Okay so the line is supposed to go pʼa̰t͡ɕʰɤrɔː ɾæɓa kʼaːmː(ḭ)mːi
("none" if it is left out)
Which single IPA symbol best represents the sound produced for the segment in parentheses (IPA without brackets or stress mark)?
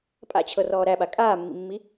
ḭ